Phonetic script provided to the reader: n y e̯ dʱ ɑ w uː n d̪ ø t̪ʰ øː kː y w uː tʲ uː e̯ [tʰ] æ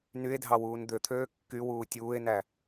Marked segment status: incorrect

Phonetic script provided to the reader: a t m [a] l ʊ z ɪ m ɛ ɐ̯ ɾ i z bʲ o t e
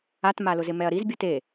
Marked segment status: correct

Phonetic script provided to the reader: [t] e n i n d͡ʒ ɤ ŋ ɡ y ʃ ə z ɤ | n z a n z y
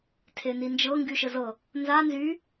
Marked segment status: incorrect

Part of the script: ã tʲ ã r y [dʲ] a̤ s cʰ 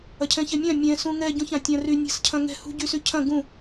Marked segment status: incorrect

